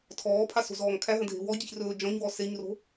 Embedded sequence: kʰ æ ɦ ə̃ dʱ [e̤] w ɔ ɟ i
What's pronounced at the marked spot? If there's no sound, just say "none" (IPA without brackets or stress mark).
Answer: e̤